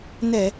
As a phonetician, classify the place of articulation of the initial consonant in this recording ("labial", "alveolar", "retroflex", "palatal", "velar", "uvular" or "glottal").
alveolar